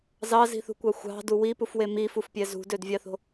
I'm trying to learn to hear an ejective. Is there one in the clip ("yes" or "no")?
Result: no